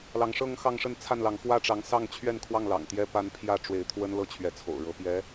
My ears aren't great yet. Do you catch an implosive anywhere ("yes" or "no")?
no